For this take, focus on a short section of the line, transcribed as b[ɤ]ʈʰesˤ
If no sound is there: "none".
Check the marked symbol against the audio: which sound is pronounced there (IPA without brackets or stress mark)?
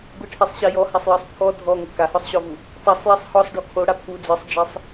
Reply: ɯ